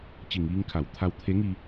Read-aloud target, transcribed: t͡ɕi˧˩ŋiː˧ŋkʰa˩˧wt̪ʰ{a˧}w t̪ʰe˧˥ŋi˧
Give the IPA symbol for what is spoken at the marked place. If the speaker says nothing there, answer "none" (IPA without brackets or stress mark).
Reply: a˧